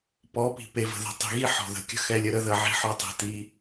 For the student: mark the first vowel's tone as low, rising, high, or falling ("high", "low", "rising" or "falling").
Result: rising